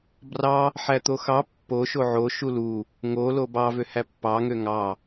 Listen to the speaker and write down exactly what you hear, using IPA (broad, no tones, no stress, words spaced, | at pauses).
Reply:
brɑ | ħæt̪oxɑ pːoʃo ʕo ʃulu | ŋolo bɑvø hæpːɑŋø ŋɑ